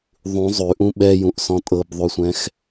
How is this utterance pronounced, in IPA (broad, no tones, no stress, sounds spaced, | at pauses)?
ðˤ ũ zˤ ʉ ʔ ũ ɓ ɛ j ũ ʔ s ɔ̃ tʼ ɤ b ðˤ ʉ sʷ ɛ̃ x